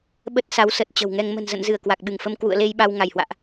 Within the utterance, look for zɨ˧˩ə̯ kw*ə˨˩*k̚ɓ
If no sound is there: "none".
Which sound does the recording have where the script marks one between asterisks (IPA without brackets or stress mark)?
a˨˩